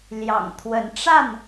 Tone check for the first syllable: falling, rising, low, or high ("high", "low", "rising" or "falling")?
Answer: low